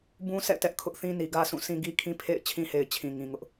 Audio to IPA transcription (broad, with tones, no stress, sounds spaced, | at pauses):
b ũ˦ s ɛ̰˦˨ t ɛ˦ ʔ kʰ ʊ˦ ʔ θ ĩ˦ n i˨ ɡ ä˦ s ũ˦˨ s ĩ˦ ɡ i˦ kʰ ĩ˦ pʰ ḛ˦˨ ɪ̯ t͡ɕʰ ĩ˦ h e˨ ɪ̯ t͡ɕʰ ĩ˨ ŋ ĩ˨ ŋ ʊ˦ ʔ